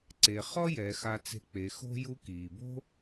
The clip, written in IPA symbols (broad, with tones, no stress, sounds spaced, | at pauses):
ǀ e˩ χ ɔ˥ j ɛ˩˧ x a˧ t͡s e̤˧ k͡p e˩˧ x o̤˥ j u˧˥ k iː˩ b o̤˥